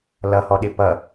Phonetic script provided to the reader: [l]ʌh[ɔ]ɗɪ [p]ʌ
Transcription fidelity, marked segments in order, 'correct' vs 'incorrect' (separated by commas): correct, correct, correct